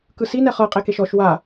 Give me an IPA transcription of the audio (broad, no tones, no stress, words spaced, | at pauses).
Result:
kɯsinɛ χɤqʼekeʃ ɔʃ wa